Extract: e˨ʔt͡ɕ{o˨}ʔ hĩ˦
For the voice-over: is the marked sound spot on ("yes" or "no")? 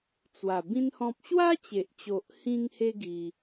yes